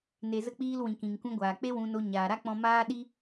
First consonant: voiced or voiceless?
voiced